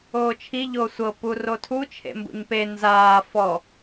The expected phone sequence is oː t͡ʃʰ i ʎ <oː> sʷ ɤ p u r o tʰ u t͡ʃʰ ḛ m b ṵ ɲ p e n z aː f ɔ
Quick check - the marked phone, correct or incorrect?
correct